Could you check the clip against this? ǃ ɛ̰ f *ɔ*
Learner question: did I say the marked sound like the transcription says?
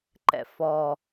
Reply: yes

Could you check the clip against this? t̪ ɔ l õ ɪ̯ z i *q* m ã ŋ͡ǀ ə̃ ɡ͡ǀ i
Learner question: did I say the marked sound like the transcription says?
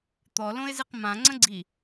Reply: yes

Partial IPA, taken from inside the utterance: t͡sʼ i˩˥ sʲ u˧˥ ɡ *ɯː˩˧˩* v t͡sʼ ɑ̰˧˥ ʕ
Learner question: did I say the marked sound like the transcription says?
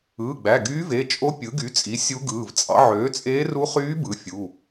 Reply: yes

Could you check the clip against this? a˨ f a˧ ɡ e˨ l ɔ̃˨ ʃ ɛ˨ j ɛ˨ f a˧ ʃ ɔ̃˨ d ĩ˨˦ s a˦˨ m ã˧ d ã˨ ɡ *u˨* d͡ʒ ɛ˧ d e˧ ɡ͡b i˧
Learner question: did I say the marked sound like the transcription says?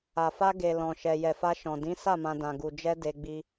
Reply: yes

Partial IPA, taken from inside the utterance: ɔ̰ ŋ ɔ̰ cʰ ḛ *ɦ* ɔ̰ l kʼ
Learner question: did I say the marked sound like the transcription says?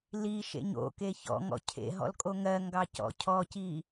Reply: yes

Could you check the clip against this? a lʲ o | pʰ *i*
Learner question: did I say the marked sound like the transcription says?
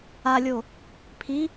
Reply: yes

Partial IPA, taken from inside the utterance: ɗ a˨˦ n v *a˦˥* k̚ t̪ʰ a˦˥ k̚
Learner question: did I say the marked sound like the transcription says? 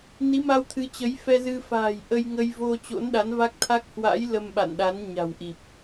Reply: yes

